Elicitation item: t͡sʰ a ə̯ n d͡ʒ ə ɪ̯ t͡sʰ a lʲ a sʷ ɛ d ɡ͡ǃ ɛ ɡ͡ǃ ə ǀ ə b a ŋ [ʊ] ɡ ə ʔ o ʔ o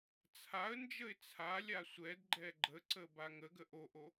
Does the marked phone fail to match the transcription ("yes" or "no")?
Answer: yes